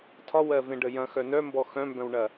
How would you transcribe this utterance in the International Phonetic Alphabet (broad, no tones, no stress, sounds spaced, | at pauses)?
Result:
tʰ ɒ w ɜ v ẽ ɖ ə j ɐ̃ x œ n œ m b ɔ x œ̃ m b œ̃ w ɳ ɐ